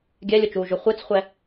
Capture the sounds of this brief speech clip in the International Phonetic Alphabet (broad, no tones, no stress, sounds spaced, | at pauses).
ɡʲ ɛ lʲ ʊ t͡ʃ uː ʒ ʊ χʷ e t͡s χʷ ɛ